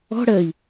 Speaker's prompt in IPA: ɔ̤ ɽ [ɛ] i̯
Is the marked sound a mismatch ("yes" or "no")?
yes